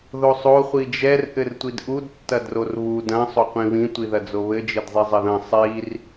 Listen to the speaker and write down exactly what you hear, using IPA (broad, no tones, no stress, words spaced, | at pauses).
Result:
ðosˤo χʷid͡ʒɛr ʔɘrtʷidʔud tːɐdrorβu dɐ̃ sˤoqʷĩβĩ tʷiðɐd͡zoβɘ d͡ʒɘdzˤizˤɘðɐ̃ sˤir